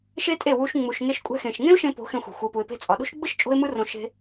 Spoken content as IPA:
ʃe˦tʼe˦˨wu˧ʃ ŋ͡mu˨ʃŋe˧ʃkʷʼɛ̤˧xẽ˨ʃ ŋẽ˦ʊ̯ʃẽ˧po̤˨˦ xẽ˧xʷɛ̤˨ xʷɯ˨pu˨ɪ̯pe̤˧ t͡sʼɒ˨ɗo̤˦ʃ ɡ͡bɯ˦ʃ t͡ʃʼo̤˦ɪ̯mɯ˦rõ˧ʃe̤˧

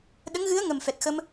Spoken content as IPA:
ɗə˧˥ŋɣɨ˧˥ə̯ ŋə˨˩mfɛ˨˩t̚xə˧m

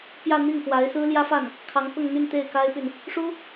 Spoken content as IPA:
pjä˥˧n̪i˥˩ŋkwa˧˥ɪ̯ sɹ̩˥ljä˥fa˥˩n | kʰɑ˧˥ŋkʊ˥˧ŋn̪y˥˧n t̪e˥˩ɪ̯ka˥ɪ̯py˨n | ʂu˥

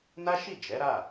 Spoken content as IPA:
na˦ʃi˦˨d͡ʒɛ˨˦ɾa˦˨

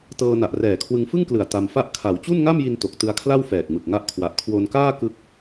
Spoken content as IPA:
tɤː˧na˨˩ʔ rɛː˨˩kʰwɯ˧ŋfɯ˥˩ŋklɯ˨˩a̯ ta˧mfa˥˩ʔ kʰa˩˦w t͡ɕu˥˩nŋa˥˩mji˧n to˨˩k̚tɯ˧a̯kʰla˥˩w fɛː˨˩k̚mɯ˨˩k̚ŋa˦˥ʔkʰwa˨˩ʔ kʰwo˧nkaː˥˩ kɯ˦˥k̚

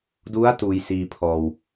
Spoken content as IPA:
du˦˥a̯ tuː˧jsiː˧pʰɔː˧w

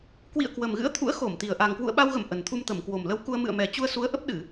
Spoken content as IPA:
kwḭ˧˨ə̯kwə˨˩mɣɨ̰˧˥ə̯t̪ʰṵ˧˥ə̯ xo˧˩mt̪i˨˩ə̯ ʔa˨˩ŋkwṵ˧˨ə̯ɓa˧wɣə̰˧˨m ʔə˨˩nt̪ʰu˧mt̪ə˧˩m kwo˨˩mlə˨˦w ku˧ə̯ mɨ̰˧˨ə̯mɛ˨˩ t͡ɕu˧ə̯ su˨˦ə̯ʔə˦˥p̚ɗɨ˧˩˨

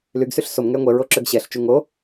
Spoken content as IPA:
lyɡsyɬ somŋɛə̯ ŋʷɛɹoǁøɡ ɕɛɬt͡ʃu ŋo

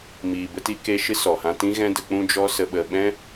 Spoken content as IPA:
miː˨bə˧ti˧ ke˧ʃɨ˦ sɔ˨hã˧tĩ˦ ɣɛ̃˦də˧k͡pũ˦ d͡ʒɔ˦sə˧ɓə˧ ɓɛ̃˦

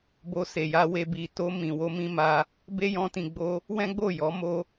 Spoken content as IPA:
bo˧se˨ja˧we˧ bi˨to˧ mĩ˨wo˧ mĩ˦ma˧ | be˦jɔ̃˧ tĩ˨ɡ͡bo˧ | wɛ̃˦ɡ͡bo˦˨ jɔ˨˦mo˦

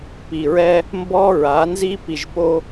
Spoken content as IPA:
pi˨ɹɛ˦ | mbɔ˦ ɹa˨˦nzi˦ pi˨ʒpo˦

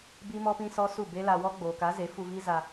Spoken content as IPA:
bi˦mɔ˦pĩ˦sɔ˦ su˦˨be˦la˧ wɔ˦ɡ͡boː˨ka˨˦ ze˨˦fu˧vi˦ za˧

